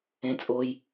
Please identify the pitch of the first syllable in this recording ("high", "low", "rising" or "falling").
low